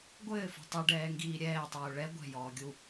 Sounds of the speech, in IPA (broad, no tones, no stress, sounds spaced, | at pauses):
ɡʷ ɘː f ṳ tˤ u ɖ ɛː ŋ ɡ iː ɾʲ ɛː tˤ uː ɭ ɛ ɡʷ ɛ̤ j ɔː ɡʲ u